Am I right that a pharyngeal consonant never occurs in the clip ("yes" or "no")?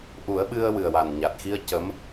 yes